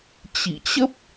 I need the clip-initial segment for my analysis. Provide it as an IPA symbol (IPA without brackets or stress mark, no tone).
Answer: t͡ɕ